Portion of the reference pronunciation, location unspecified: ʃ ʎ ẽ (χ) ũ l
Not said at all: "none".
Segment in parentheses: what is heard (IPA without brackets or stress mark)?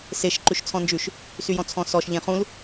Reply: χ